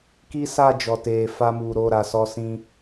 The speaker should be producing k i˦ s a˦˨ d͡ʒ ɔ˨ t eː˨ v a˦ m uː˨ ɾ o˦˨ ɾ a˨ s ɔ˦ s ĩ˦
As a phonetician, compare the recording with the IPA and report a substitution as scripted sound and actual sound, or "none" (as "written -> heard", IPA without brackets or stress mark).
v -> f